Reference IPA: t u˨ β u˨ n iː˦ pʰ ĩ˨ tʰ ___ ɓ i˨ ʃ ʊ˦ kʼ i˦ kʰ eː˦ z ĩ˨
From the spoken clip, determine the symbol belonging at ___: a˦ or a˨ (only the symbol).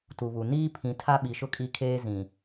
a˦